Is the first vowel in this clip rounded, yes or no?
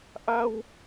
no